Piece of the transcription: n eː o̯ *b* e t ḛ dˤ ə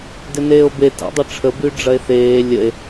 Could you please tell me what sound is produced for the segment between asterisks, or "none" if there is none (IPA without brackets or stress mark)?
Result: b